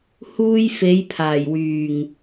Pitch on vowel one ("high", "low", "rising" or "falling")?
high